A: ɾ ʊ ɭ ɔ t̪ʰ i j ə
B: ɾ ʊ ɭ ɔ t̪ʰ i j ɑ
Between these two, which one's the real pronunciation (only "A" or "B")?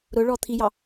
B